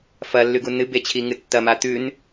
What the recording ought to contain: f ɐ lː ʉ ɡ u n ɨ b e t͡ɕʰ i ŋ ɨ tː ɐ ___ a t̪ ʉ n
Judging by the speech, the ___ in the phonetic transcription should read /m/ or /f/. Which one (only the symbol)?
m